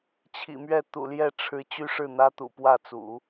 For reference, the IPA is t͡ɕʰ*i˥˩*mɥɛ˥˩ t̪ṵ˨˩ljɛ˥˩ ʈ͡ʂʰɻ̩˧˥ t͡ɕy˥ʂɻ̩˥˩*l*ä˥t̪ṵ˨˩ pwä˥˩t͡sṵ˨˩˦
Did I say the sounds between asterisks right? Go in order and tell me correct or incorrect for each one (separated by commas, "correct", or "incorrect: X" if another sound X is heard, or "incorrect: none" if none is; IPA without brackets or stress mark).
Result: incorrect: ḭ˨˩, incorrect: n̪